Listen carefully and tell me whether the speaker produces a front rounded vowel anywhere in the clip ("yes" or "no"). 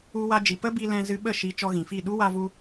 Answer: no